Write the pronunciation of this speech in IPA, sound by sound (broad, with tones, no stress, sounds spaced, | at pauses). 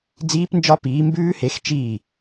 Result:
d͡z iː˦˥ p n d͡ʒ ɒ˦˥ p iː˨˥ m b ʉː˦˥ h e˨˥ x t͡ʃ iː˥˩